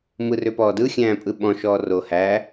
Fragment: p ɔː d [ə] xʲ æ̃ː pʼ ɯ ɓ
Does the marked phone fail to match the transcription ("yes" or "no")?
yes